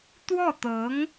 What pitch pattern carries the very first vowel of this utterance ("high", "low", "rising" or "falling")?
falling